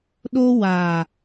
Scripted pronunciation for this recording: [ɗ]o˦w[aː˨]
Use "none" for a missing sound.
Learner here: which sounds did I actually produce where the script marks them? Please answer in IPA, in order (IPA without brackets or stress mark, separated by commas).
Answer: ɗ, aː˨